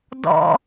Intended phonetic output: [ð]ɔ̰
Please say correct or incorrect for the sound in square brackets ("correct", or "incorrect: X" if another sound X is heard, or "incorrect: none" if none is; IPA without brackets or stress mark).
incorrect: d